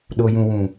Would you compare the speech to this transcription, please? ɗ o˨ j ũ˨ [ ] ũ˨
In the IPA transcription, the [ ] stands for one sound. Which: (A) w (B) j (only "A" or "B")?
A